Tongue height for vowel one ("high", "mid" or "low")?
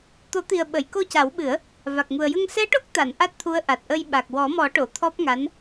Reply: mid